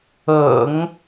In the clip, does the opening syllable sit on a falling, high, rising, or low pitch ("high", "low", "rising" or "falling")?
low